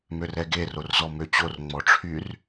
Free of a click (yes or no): yes